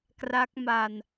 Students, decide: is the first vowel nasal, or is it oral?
oral